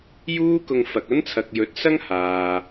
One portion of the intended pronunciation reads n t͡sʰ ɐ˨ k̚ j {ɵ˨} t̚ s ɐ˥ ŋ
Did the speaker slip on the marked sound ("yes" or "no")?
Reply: yes